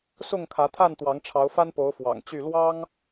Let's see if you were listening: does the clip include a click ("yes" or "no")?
no